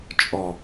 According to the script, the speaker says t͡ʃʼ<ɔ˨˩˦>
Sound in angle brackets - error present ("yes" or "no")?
yes